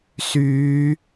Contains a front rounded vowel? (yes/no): yes